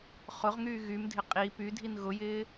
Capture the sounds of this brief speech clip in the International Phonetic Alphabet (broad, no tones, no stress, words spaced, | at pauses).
χʊʁŋyː ɣymdʱɪ qʼi pydʱin ɣʊjɪː